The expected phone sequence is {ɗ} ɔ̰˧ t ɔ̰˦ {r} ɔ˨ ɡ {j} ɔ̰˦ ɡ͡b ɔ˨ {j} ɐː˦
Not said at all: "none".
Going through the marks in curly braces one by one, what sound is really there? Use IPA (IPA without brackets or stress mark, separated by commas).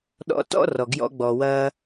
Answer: ɗ, r, j, w